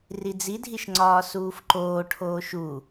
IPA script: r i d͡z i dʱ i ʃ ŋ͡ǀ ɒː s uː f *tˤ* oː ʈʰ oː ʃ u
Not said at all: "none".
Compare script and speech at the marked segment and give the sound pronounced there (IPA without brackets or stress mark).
ǃ